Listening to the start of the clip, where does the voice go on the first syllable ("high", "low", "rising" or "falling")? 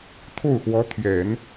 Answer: falling